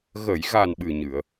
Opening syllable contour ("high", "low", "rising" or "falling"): low